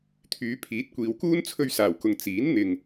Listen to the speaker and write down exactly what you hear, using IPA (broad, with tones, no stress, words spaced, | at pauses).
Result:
t̪ʰyː˨˧pʰiː˨˥t̚kʷiː˨wkuː˥n t͡sʰɵ˧ɥsaː˨˩wkʊ˨ŋ t͡siː˨˥n n̪ɪ˨ŋ